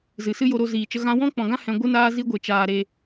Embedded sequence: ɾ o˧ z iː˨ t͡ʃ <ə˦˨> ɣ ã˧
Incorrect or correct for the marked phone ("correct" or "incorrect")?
incorrect